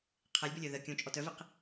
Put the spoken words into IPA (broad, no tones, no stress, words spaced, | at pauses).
qʰɛlʲbœlʲœ ðə kʲõt͡ʃʼɔt œviq